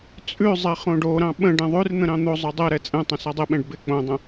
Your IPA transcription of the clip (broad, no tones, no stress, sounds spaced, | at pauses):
t͡sʼ ʉ zˤ ɛ χ õ ɖ o ɾ ɑ̃ ɓ ə̃ ɖ ɛ̃ ðˤ ʉ r n̪ ə̃ ɾ ɑ̃ n̪ o zˤ ʉ dˤ ɛ ɾ ɛ t͡sʼ ɛ̃ tˤ ə̃ s a dˤ ɪ ɓ ɛ̃ ɖ b ɪ k͡p õ dˤ ə̃